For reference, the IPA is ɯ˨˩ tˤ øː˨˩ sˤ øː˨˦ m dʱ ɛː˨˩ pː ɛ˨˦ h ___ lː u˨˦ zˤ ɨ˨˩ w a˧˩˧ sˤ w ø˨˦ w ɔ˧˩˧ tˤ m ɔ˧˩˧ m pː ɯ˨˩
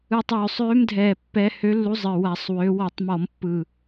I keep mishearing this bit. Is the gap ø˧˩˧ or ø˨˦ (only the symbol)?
ø˨˦